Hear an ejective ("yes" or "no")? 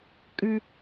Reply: yes